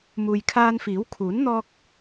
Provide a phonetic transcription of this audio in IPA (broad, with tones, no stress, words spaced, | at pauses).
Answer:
muː˨jkʰaː˧nfiː˨˥wkʰuː˨˥n n̪ɔː˥k̚